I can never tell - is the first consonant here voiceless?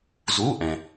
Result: no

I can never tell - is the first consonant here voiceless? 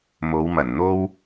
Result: no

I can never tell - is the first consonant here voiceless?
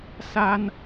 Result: yes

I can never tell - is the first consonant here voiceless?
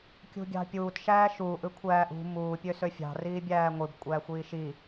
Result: yes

